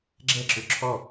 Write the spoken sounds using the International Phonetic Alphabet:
ɡ͡ǁ ɛ ǁ ʏ ǁʰ ɔ

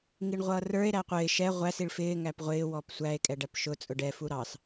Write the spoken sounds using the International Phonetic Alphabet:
ŋ i ɳ ʁʷ ʌː r ə˞ e̯ ɾ æ qʷ ɪː ʃ ɛ ʁʷ æ s i ɭ f ɪː ŋ æ p ʁʷ ɪː w ɔ p sʷ æ e̯ kʼ ɛ ɖ æ p ʃ ʊ t͡sʼ ʊ ɖ ɛ f u ɾ ɑ s

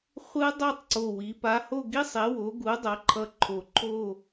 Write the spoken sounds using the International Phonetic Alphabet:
χʷ ɯ˥ dˤ o˥˧ tˤ ǀ o˧˩ w i˩˧ p a˨˥ h o˥˧ ɡ i˥ sˤ e˨˥ w o˨˥ ɡ u˨˥ dˤ ʌ˨˥ ǃʰ ʌ˧ ǃʰ o˧˩ ǃʰ o˥˧

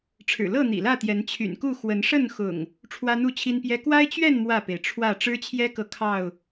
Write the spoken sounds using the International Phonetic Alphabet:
ʈ͡ʂʰ ɻ̩˨˩ l ɤ˥˨ n̪ ḭ˨˩ l ä˥˨ t̪ j ɛ˨˦ n t͡ɕʰ y̰˨˩ n k u˥˨ x w ə˨˦ n ʂ ə˥˨ n x ʊ̰˨˩ ŋ | ʈ͡ʂʰ w ä˦ n̪ u˥˨ t͡ɕʰ i˦ n p j ɛ˦ k w a˦ ɪ̯ t͡ɕ ɥ ɛ˥˨ n m w ä˥˨ p e˩ ɪ̯ ʈ͡ʂʰ w ä˥˨ ʈ͡ʂ ɻ̩˦ t͡ɕʰ j ɛ˦ k ɤ˨ kʰ ɑ˥˨ ʊ̯

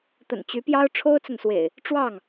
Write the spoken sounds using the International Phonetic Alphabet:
t̪ ə̰˨˩ n t͡ɕ y˨˦ p j ɑ˦ ʊ̯ ʈ͡ʂʰ o˦ ʊ̯ t͡s ə˨ n s w ḛ˨˩ ɪ̯ | ʈ͡ʂ w ɑ˥˨ ŋ

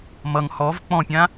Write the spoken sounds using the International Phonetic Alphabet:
m ʌ ŋ h ɔ v k͡p ɔ̃ pʲ ã

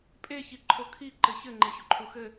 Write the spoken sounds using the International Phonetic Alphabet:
pʼ e ç i ǃʰ o kʰ i ǃ ɘ ç ɘ ŋ͡ǃ e ç o ǃʰ u x ɘ

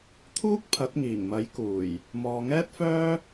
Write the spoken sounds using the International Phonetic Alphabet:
t̪ʰ uː˥ k̚ pʰ ɐ˨˥ t̚ ŋ iː˨˩ ŋ m ɐ˨˥ j k uː˨˩ j | m ɔː˨ ŋ ɛː˥ t̚ f œː˥

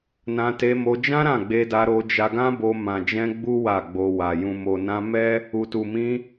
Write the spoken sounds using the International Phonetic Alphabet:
n ã˧ t e˧ m o˧ d͡ʒ ã˦ ɾ ã˦˨ ɡ͡b e˧ d a˧ ɾ o˧ d͡ʒ a˧ ɡ ã˦ b o˧ m ã˨ d͡ʒ ɛ̃˧ ɡ͡b u˦ w a˦˨ ɡ͡b o˧ w a˨ j ũ˨ m o˨ n ã˧ m ɛ˦ | u˨ t u˨ m ĩ˧

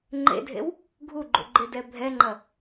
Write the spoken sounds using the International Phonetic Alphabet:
ŋ͡ǃ ḛ dʱ ḛ w | ɡʱ u ɡ͡ǃ ṵ ɡ͡ǃ ɪ d ɛ bʱ ɛ ŋ͡ǃ ɐ

